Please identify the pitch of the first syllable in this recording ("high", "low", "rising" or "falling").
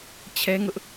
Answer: high